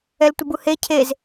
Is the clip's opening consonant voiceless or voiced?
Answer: voiced